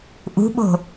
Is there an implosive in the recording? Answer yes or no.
yes